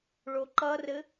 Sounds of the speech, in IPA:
ɭ o ǃ ʌ r ɘ

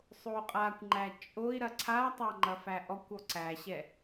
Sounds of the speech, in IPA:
sˤ o u̯ qʼ a kʷ ŋ͡ǃ æ t͡ʃʼ o i̯ ɾ ɐ ǀʰ a tˤ a ŋ͡ǃ ɐ f æ ʔ ɔ kʷ ɔ ǀ æ ɕ ɛ

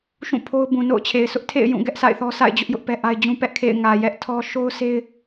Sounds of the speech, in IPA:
ʃ ũ˦˨ pʰ o˦ ʊ̯ b ũ˨ n o̰˦˨ ʊ̯ t͡ɕʰ e˨ ɪ̯ s ʊ˦ ʔ tʰ ḛ˦˨ ɪ̯ j ũ˦˨ ɡ ɛ˦ ʔ s a̰˦˨ ɪ̯ θ ɔ˦ sʰ a̰˦˨ ɪ̯ d͡ʑ ʊ˦ ʔ j ʊ˦ ʔ p ɛ˦ ʔ a˦ ɪ̯ d͡ʑ ũ˦ p ɛ˦ ʔ kʰ ḛ˦˨ ɪ̯ ŋ ä˨ j ɛ˦ ʔ tʰ ɔ˦ ʃ o˦ ʊ̯ s e˦ ɪ̯

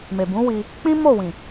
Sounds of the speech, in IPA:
m e˨ b ũ˨˦ w i˧ | k͡p ĩ˦ m o˦˨ w ĩ˨

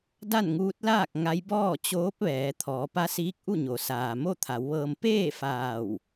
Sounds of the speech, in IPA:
d a˥˨ n ŋ uː˧˥ t̚ l aː˥˨ k̚ ŋ a˧˥ j b ɔː˥˨ t͡ɕ oː˧˥ p̚ ʋ ɛː˩˧ t̪ʰ ɔː˩˧ p a˧˥ s iː˧˥ k̚ ʔ u˥˨ ɲ o˩˧ s aː˩ m o˥˨ t̪ʰ a˩˧ w ʋ ɤː˧ m p eː˥˨ f aː˧˩ w

